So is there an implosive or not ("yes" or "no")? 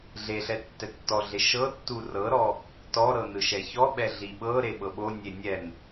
yes